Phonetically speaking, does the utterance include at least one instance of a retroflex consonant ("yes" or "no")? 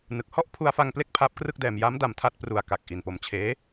no